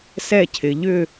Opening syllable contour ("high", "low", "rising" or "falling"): falling